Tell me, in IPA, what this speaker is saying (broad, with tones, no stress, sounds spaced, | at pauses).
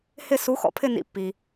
h ɪ˥˧ s u˨˥ x ɔ̰˧ pʰ ɪ˥˧ n ḭ˧˩ pː i˩